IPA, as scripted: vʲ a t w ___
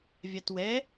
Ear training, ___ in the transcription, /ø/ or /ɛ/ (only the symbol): ɛ